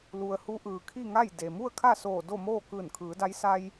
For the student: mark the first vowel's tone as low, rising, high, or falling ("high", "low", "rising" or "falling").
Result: low